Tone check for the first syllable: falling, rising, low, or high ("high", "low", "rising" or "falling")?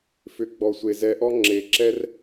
low